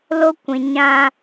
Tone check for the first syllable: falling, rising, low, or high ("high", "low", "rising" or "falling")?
high